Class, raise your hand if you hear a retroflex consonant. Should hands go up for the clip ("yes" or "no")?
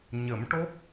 yes